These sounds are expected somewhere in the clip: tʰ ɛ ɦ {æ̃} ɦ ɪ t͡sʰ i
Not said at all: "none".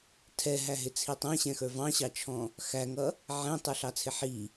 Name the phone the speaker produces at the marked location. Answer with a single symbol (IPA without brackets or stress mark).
æ